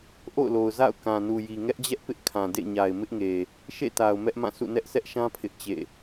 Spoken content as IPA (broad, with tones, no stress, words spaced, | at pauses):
ʔo̰˦˨ʊ̯lo˨ʊ̯za̰˦˨ʊ̯ kã˨ nu˨ji˨ ŋɛ˦ʔd͡ʑɛ˦ʔpɪ˦ʔ kʰã˨dḛ˦˨ɲa˨ɪ̯ mɪ˦ʔŋe˨ | ʃḛ˦˨ta˨ʊ̯ mɛ˦ʔmã˦˨sʰṵ˦˨ nɛ˦ʔsʰɛ˦ʔʃã˦ pʰɪ˦ʔt͡ɕḛ˦˨